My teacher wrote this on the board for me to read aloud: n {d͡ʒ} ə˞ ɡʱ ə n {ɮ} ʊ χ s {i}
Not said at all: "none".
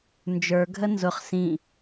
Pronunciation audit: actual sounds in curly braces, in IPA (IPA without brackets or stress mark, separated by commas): d͡ʒ, z, ĩ